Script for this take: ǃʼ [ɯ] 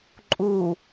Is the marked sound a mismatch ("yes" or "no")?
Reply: yes